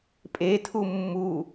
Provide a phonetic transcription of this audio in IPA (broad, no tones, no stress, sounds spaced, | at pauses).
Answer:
pʼ e tʰ u mː u